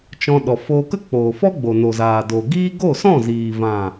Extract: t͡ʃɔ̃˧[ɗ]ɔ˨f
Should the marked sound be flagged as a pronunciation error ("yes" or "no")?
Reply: no